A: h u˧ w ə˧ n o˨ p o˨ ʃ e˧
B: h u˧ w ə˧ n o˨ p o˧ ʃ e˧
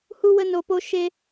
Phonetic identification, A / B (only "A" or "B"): B